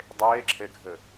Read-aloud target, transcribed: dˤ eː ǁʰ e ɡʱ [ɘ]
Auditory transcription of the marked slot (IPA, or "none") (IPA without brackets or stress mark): ɘ